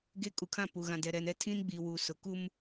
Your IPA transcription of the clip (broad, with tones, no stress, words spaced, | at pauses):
ɡe˦ kʼu˨kʰã˦˨pu˨ ɣã˨dɛ˨ɾɛ˨nɛ˦ tʰĩ˦nɡ͡bi˨wu˨ sʊ˨ku˦m